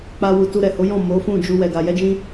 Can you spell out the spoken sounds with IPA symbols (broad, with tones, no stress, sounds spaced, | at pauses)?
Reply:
k͡p a˦ w u˧ t u˧ ɾ ɛ˨ h o˨˦ j ɔ̃˦˨ m o˨˦ f ũ˦˨ d͡ʒ u˧ w ɛ˨ ɡ a˧ j ɛ˦ d͡ʒ ĩ˦